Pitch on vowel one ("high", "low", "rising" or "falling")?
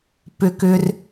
high